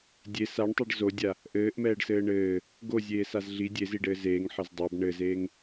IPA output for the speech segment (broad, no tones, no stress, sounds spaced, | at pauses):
dʲ e s a ɳ tˤ i ɖ z o dʲ a | ʔ ɘː ʔ m ɛː ɖ s ɘː ɳ ɘː | ɡ o zʲ eː s a z ɮ i dʲ e z i ɖ ɘː z eː ŋ ħ ɘ z dˤ a b ɳ ɘ z eː ŋ